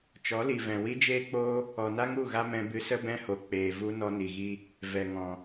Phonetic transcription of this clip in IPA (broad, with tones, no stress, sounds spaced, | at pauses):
t͡ʃ ɔ˨˦ l i˨ v ɛ̃˨ w i˦ d͡ʒ eː˦ k͡p oː˦ | ɔ˨ n a˦ ŋ u˦˨ ɣ a˦ m ɛ̃˧ b ɨ˧ s ə˦ b ɛ̃˦ h o˨ k͡p eː˨ v u˦ n ɔ˧ n i˨ ɣ i˧ | v ɛ˨ ŋ ɔ̃˨